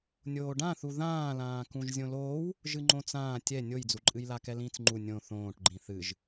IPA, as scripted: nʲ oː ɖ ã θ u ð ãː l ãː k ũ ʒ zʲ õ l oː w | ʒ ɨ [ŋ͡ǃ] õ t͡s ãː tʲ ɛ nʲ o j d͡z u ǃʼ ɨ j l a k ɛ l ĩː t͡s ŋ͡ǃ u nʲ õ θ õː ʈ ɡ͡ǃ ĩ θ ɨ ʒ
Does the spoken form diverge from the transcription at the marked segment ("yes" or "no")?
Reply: no